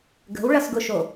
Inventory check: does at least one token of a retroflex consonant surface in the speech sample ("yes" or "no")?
yes